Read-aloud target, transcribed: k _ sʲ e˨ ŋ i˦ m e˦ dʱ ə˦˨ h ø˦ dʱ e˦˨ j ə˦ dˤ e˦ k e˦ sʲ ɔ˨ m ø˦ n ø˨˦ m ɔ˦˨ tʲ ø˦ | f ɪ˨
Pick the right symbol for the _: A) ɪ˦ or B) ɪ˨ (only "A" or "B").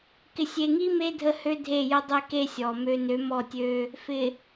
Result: B